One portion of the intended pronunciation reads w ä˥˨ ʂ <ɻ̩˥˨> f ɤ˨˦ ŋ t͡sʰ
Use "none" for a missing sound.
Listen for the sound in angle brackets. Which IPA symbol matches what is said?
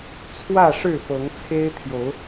ɻ̩˥˨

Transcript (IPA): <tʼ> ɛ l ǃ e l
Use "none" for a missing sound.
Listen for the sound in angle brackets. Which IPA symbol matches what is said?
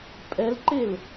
pʼ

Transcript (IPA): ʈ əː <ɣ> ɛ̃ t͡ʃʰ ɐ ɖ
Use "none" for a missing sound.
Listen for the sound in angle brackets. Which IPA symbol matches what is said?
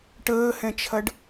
h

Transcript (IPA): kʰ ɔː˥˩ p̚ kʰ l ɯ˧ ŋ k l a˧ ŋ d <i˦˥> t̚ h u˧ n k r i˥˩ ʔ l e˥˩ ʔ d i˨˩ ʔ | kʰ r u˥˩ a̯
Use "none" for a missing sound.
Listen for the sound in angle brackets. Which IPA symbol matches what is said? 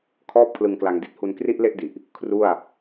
i˦˥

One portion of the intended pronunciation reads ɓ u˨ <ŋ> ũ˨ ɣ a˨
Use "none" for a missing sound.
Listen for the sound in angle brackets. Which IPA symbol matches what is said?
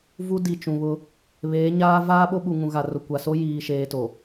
ŋ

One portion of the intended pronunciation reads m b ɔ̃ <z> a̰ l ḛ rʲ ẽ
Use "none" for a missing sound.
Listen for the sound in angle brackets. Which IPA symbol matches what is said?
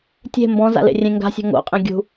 z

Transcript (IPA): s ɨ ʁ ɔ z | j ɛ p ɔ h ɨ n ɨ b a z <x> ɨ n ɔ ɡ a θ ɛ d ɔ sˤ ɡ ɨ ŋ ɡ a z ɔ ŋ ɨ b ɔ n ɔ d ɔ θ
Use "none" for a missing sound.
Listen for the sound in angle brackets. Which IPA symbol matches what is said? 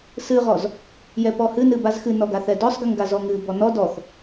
x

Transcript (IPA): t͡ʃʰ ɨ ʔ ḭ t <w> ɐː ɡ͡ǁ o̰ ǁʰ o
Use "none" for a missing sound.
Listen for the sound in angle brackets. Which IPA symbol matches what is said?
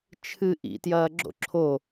j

